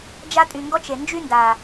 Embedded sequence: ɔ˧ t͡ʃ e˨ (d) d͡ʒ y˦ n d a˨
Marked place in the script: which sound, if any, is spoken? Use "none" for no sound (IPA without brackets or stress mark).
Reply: n